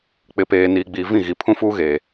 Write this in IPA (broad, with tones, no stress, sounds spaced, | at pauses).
k͡p ɪ˨ p eː˨ n iː˨ ɡ͡b iː˨ v ĩ˦˨ ɣ i˨ pʰ ũ˦ f uː˦ ɣ eː˨